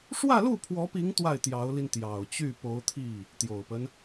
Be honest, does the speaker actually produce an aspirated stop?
yes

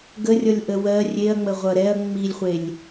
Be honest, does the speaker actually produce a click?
no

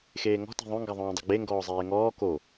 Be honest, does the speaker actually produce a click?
no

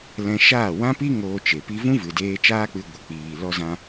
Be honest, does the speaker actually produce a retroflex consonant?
no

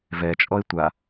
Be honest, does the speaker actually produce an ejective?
yes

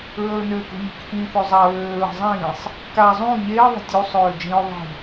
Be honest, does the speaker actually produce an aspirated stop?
no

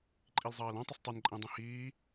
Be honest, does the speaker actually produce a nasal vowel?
yes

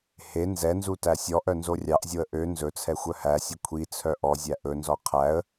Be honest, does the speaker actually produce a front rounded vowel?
yes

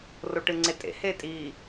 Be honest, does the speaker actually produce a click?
yes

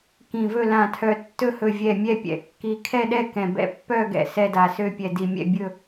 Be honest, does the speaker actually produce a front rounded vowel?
yes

